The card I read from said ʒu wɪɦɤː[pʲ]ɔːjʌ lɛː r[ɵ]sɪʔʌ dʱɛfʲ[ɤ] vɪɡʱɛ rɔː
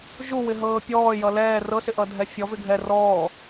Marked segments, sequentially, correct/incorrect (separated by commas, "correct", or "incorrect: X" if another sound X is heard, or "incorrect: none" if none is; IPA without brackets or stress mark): correct, incorrect: ɤ, incorrect: ɔ